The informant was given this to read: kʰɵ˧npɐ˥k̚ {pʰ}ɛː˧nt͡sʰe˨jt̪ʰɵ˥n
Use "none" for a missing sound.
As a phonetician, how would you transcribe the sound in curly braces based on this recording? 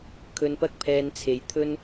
pʰ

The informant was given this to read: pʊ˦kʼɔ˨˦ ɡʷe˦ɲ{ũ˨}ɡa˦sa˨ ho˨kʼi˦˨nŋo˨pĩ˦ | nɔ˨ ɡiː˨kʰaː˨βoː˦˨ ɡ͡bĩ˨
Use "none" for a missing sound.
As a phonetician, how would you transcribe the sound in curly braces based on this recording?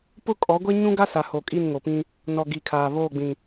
ũ˦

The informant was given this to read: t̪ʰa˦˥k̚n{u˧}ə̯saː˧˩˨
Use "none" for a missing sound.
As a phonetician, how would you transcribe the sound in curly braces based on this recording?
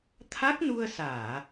u˧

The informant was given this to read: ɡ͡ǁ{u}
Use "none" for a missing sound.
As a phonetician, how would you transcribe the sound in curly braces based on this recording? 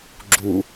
u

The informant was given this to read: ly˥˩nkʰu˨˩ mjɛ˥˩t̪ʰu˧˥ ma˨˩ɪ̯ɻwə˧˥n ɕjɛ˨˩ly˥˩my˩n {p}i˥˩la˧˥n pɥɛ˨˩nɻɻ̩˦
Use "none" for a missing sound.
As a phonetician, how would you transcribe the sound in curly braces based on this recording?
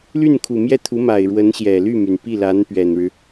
p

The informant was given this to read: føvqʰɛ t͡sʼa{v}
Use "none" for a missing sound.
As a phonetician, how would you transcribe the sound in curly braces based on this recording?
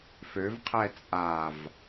v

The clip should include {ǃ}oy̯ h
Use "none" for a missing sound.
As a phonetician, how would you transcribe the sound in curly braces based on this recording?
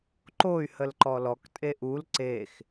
ǃ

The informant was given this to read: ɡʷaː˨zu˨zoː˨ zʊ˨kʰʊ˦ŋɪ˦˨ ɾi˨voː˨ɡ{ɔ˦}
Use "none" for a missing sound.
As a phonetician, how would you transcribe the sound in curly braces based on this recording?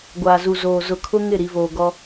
ɔ˦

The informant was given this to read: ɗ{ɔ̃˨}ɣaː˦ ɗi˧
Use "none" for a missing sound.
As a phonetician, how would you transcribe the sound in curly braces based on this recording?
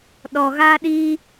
ɔ˨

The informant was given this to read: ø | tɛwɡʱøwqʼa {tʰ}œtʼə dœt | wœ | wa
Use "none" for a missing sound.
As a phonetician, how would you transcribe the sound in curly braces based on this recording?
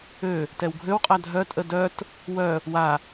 dʱ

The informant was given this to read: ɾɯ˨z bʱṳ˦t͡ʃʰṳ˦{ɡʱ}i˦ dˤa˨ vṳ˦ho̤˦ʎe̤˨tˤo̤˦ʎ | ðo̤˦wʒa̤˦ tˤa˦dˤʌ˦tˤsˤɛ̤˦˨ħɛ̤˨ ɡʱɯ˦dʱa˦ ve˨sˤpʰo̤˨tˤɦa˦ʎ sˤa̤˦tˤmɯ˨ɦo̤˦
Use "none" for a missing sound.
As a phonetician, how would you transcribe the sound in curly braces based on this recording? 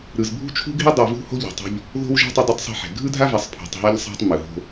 ɡʱ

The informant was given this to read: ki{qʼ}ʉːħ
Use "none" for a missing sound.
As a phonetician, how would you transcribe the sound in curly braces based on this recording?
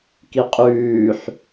qʼ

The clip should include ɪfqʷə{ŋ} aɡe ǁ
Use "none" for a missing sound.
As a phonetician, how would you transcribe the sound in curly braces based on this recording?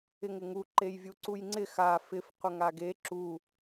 ŋ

